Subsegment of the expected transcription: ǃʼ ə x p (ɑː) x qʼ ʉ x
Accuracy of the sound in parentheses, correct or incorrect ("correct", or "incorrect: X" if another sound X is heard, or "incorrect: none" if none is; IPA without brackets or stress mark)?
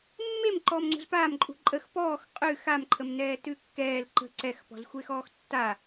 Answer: incorrect: ɔː